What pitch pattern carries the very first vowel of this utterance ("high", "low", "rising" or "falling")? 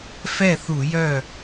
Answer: falling